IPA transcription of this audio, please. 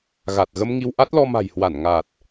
ɣ a˨˩ t̚ ɣ ə˧ m ŋ i˧ w ʔ a˦˥ t̚ l ɔ˧ m a̤˨˩ j h w a˧˩ n ŋ a˨˩ t̚

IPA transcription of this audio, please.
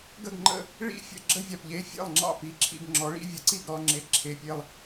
ɡ ə˥˩ ɡ ŋ͡ǃ ə̰˥˩ | ɭ ḭ˥˧ fʲ ə̰˥˩ ɡ͡ǁ ə˥˧ vʲ a˨ p ʎ e˧˥˧ fʲ ḛ˥˩ lˠ ŋ͡ǁ ɑ̰˥˩ p i˧˥˧ ǁʰ ḭ˥˧ ɡ ŋ͡ǁ ɔ˩˥ ɭ ḭ˧˥˧ vʲ ə˩˥ ǀ i˥˩ ɡ ɾ ɔ˧˥˧ ŋ͡ǁ e˧˥˧ ǁʰ e˧˥˧ pʲ e˥˧ lˠ

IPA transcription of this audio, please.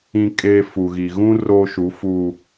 ĩ˦ kʼ eː˦ f u˨ ɣ i˨ ɣ ũ˦ r o˦ ʃ u˨˦ f uː˨

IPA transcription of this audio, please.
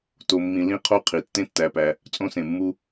t o˨ mː ĩ˨ l ĩ˦ qʰ o˦ qʰ i˩ tː ẽ˥ tː æ˨ p æ˨ | t͡sʼ õ˦ s ẽ˩ mː u˦

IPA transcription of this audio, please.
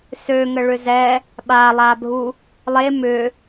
s ø ŋ ə ɭ ʏ z ɛ | ɓ a lˠ a bʱ u | lˠ e m ʏ

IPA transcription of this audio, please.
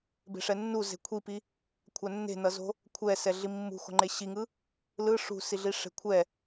b e̤ ʂ ɛ nː u z e̤ kʷʰ i p i | kʷʰ a nː e̤ n ʌ z o̤ | kʷʰ ɛ s ɛ ɮ i mː ṳ x o̤ ŋ͡ǃ e ɕ i ŋ ɯ | l ɯ ʂ ṳ s i ɮ i ʂ e̤ kʷʰ ɛ

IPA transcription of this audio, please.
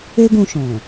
e˦ ɡ ũ˧ ʃ ɔ̃˨

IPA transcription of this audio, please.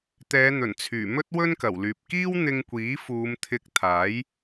t̪ ɛː˨˧ n̪ ɵ˨˩ n t͡sʰ yː˨˩ m ɵ˥ t̚ w ɵ˥ n k ɐ˨˩ w l yː˨ p̚ k iː˥ w n̪ ɪ˧ ŋ kʷ iː˨˥ f uː˨˧ m t̪ʰ ɪ˧ k̚ t̪ʰ aː˨˥ j

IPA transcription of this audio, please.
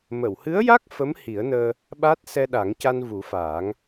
m ə˨˩˨ w h ɨ˧˥ ə̯ j a˦˥ k̚ f ə˧˥ m h i˨˩˦ ə̯ n əː˧ | ɓ a˦˥ t̚ s ɛ˧ ɗ a˨˩˦ ŋ c a˧ n v u˨˩˦ f aː˨˩˦ ŋ

